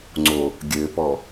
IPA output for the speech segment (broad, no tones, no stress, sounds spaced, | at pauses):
ŋ͡ǀ o | ɡʲ ɘ p ɔ